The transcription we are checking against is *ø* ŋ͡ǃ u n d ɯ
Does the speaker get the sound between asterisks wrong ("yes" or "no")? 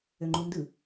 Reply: no